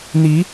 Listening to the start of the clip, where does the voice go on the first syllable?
rising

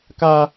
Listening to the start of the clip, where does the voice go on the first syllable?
high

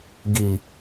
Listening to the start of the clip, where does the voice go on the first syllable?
low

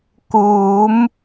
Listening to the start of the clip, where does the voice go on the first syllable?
rising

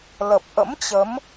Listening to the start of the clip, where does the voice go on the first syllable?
low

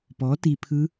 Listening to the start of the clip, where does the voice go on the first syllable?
rising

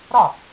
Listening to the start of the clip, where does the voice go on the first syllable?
falling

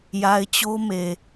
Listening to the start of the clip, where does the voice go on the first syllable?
low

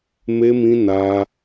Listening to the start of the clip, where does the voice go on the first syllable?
high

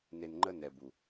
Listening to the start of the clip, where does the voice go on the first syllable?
low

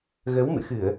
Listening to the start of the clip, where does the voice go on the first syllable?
rising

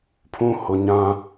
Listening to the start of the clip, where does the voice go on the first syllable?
low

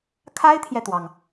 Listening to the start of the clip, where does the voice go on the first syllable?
high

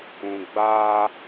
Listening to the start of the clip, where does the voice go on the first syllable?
low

